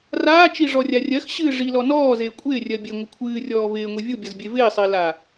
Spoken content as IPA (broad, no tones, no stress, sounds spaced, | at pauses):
r aː t͡ʃ i ʐ ɔ rʲ a rʲ ɜ x ɕ ɨː ʐ i l ɔ n ɔː z eː kʷʼ ɪː rʲ ɜ bʲ e ŋʷ ɪ kʷʰ ɨː rʲ ɔː v ɪː ŋʷ i vʲ u bʲ ʌ z bʲ e v ɪː sˤ ɪː l a